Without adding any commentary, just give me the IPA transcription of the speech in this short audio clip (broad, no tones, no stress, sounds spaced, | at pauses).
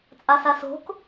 t͡sʼ a s a s o̤ k